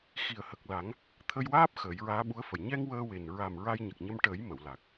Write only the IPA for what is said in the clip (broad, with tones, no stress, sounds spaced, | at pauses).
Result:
x i˨˩ ə̯ h ə˨˩ k̚ l a˨˩˦ ŋ | t̪ʰ ə˧ j w aː˦˥ p̚ x əː˨˩˦ j ɹ aː˧˥ ɓ u˧˥ ə̯ f ə˨˩ j ɲ ɛ˧ ŋ w əː˧ w e˨˩ n ɹ a˨˩ m ɹ a˧ j ɲ ə˨˩ k̚ ɲ ə˧ m ʈ əː˨˩˦ j m ə˨˩˨ w l a˨˩ k̚